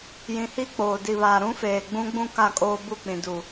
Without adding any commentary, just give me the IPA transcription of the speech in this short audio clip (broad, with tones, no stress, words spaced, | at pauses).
jĩ˨hi˦k͡poː˨ di˨βaː˨ ɾũ˦feː˨ ɡ͡bũ˦ɡ͡bũ˦ ka˦˨kʼoː˦bu˦˨ k͡pĩ˨du˨